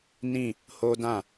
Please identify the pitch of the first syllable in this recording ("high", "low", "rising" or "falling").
falling